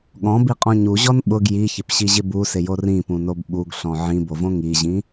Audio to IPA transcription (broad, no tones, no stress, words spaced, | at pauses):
ɠɔ̃biqʼɔ̃ ɲuʑɔn ɓʊɡ jiçɪpɕiʑɪ busɪjo rĩpũnob ɓuɡɬɔ̃ ʕĩbovõ ŋiʑĩ